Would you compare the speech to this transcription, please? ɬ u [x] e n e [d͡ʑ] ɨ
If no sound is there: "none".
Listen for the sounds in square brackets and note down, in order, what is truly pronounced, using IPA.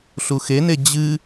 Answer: x, d͡ʑ

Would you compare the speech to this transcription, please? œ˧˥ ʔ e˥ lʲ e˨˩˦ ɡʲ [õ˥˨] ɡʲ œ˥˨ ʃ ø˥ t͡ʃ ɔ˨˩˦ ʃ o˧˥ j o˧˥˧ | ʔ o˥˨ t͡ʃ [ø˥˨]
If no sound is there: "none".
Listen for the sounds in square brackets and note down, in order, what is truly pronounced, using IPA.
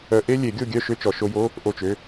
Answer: o˥˨, ø˧˥˧

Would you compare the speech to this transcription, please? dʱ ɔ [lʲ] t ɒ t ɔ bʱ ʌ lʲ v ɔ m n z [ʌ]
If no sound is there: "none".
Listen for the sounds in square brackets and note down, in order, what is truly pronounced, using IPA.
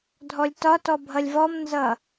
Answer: lʲ, ʌ

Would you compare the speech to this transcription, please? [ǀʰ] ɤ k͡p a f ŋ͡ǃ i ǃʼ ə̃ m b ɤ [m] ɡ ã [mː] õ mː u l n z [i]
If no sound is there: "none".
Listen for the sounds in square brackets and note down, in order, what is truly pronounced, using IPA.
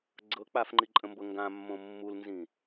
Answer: ɡ͡ǀ, ŋ, mː, ĩ

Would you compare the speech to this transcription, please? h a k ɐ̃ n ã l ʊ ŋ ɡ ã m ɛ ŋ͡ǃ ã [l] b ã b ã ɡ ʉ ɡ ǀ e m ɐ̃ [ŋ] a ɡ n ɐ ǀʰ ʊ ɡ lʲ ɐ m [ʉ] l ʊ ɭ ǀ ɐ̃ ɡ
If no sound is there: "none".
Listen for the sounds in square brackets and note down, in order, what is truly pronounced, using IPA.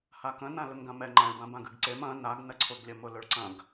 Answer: ɭ, n, ʊ

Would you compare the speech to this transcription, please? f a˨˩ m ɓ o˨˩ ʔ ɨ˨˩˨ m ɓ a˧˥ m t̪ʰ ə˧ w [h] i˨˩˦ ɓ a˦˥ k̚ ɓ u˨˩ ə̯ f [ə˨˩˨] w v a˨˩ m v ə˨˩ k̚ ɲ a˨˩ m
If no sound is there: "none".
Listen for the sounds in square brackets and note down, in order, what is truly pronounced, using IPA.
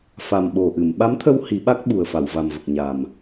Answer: h, a˨˩˨

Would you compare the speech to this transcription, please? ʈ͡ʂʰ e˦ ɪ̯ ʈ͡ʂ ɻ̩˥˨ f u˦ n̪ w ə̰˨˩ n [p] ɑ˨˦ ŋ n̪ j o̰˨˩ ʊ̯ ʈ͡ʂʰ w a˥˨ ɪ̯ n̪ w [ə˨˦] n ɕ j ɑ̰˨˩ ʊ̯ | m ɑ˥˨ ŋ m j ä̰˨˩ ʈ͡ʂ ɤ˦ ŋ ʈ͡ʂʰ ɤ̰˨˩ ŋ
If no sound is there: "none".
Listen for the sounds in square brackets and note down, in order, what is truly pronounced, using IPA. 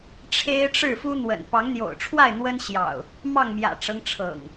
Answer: p, ə˦

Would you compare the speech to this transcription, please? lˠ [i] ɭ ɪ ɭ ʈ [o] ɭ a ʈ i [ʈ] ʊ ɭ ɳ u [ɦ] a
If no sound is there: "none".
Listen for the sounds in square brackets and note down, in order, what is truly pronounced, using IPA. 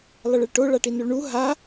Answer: ɪ, o, n, ɦ

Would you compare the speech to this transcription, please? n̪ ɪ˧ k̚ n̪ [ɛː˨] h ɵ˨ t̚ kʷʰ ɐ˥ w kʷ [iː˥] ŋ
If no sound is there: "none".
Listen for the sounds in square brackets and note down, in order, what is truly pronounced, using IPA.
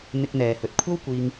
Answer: ɛː˨, iː˥

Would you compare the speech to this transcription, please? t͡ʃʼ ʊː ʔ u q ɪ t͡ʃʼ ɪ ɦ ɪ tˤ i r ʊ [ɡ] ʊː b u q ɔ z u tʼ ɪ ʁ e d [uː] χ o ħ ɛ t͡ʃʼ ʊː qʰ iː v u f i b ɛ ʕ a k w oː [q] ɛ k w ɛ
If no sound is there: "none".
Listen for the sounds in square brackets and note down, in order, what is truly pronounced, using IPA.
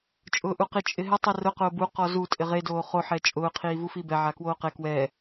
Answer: q, oː, q

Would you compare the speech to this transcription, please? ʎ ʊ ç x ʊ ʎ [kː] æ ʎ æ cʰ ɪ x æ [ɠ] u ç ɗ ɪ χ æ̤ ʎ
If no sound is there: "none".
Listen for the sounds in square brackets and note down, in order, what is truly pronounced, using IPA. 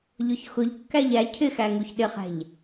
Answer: kː, ŋ

